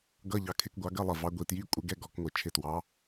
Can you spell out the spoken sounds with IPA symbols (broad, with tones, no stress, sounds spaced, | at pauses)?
ɡ ʌ˧˥˧ ʎ ɑ˨˦ kʰ ɪ˧˥˧ k ɡʷ ɑ˨˦ ɡ ɜ˧˥˧ lˠ ɜ˧˩ v ɑ˨˦ ɡʷ i˧˩ t j i˧˥˧ kʷʼ ɪ˨˦ ɡ ɛ˧˥˧ ɡ ɔ˨˦ k ŋʷ ɪ˧˩ t͡ʃʰ ɪ˧˩ t w ɑ˨˦